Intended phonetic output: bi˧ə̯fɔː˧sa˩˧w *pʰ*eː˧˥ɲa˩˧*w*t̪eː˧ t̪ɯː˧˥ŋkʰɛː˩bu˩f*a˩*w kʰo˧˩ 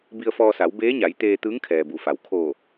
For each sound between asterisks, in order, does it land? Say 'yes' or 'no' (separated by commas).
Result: no, no, yes